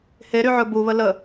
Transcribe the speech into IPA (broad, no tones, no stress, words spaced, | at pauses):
heɾyʕɵ buβə lə